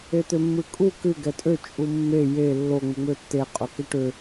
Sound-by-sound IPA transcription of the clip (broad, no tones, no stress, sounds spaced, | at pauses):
e t̪ ø mː ɨ kʼ u k ɨ ɡ ɛ tʼ ø t͡ʃʼ u mː e j e lː o ŋ͡m ɨ ŋ͡m ø tː e qʼ o k e ʈ ø